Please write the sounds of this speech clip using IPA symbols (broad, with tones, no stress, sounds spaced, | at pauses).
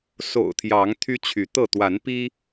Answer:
s o̰˨˩ ʊ̯ t̪ʰ j ɑ˨˦ ŋ t̪ʰ y˦ t͡ɕʰ y˨˦ t̪ ɤ˥˨ t̪ w a˨˦ n p i˦